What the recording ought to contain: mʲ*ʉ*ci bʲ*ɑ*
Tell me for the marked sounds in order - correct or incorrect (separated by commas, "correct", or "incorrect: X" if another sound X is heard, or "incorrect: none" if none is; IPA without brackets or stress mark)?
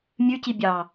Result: correct, correct